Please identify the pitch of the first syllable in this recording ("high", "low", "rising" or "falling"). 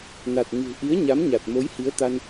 low